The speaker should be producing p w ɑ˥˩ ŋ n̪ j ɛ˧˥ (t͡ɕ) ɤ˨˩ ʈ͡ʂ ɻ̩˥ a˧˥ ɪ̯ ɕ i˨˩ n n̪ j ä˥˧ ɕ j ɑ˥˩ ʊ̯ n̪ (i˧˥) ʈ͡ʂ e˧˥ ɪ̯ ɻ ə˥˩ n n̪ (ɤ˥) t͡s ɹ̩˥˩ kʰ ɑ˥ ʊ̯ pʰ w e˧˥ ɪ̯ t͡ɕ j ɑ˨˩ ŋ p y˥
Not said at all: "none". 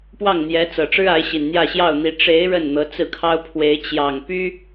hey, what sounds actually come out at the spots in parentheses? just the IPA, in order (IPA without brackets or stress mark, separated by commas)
t͡s, i˧˥, ɤ˧˥